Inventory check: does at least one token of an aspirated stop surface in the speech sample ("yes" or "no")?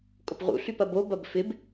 no